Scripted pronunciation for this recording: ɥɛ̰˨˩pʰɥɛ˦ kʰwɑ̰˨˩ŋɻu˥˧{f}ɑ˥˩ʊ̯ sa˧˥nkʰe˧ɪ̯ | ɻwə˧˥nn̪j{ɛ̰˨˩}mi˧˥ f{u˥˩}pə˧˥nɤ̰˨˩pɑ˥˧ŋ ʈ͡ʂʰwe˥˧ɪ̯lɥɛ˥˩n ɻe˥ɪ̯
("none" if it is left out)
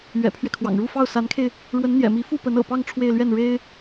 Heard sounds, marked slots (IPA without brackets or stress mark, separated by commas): f, ɛ̰˨˩, u˥˩